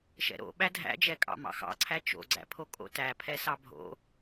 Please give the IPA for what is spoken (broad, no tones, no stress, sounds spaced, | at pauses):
ʃ ɛ̰ ɾ o̰ ɓ æ dʱ æ̰ d͡ʒ ɛ kʼ ɑ̰ m ɑ̰ x ɑ̰ ǀʰ æ t͡ʃ o̰ ɡ͡ǀ æ̰ pʰ o kʼ o̰ t æ pʰ ɛ s ɑ bʱ o̰